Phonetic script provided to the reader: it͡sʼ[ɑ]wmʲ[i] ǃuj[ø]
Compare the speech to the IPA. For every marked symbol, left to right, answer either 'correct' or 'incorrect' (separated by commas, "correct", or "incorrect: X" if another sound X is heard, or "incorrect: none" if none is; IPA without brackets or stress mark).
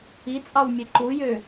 correct, incorrect: e, correct